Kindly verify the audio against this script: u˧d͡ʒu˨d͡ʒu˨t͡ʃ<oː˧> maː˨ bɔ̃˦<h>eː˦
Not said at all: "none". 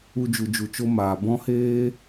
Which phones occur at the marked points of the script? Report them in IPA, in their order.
o˧, h

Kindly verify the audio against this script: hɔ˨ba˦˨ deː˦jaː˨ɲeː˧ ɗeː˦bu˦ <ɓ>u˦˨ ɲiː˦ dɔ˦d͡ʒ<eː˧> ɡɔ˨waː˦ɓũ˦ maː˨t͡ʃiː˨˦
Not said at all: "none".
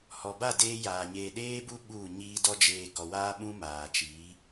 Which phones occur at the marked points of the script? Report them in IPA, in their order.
ɓ, eː˧

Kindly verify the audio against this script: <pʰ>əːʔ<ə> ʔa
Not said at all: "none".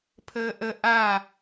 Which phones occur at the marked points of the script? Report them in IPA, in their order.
pʰ, ə

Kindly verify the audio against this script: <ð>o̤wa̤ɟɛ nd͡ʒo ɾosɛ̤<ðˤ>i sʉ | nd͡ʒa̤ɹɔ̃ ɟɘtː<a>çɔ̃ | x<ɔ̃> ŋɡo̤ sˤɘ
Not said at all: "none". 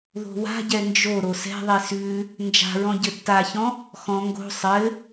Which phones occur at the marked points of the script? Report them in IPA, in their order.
ð, ðˤ, a, ɔ̃

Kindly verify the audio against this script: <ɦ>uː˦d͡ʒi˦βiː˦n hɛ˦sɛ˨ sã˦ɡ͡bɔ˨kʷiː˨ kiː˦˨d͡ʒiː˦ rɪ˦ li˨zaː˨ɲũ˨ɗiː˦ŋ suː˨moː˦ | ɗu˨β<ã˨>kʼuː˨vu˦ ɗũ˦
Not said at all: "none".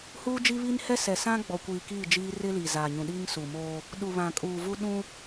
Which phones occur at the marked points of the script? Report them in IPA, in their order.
h, ã˨

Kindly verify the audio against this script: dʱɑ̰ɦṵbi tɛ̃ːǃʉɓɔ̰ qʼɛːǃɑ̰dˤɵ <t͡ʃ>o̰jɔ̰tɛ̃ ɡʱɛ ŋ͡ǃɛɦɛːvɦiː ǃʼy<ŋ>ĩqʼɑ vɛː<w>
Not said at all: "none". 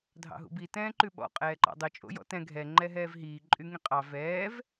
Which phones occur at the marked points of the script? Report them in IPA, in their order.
t͡ʃʼ, ŋ, v

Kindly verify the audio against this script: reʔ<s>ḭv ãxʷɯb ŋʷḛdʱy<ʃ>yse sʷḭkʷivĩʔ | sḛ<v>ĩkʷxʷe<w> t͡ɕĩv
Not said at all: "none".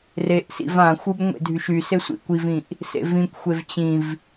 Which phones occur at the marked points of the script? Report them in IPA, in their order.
s, ʃ, v, v

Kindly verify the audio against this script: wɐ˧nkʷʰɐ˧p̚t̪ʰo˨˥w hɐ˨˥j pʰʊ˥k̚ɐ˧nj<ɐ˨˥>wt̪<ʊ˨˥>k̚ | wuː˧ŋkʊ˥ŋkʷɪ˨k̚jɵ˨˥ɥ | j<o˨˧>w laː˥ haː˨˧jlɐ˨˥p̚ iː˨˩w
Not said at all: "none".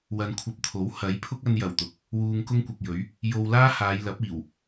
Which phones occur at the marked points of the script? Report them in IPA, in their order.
ɐ˨˩, ʊ˨˥, o˧

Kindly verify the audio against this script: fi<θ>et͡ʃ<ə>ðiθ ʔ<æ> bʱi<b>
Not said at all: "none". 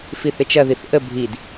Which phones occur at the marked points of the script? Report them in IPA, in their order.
θ, ɐ, ə, d

